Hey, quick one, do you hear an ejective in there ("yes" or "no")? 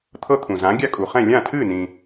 yes